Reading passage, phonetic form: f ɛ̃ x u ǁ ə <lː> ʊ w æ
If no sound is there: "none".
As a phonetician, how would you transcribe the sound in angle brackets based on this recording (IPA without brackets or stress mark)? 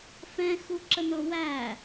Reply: n